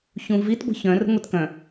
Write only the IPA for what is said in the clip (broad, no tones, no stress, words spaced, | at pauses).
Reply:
çũvitɡʷə̤ çœ̃rə̤ ŋʷitkœ̃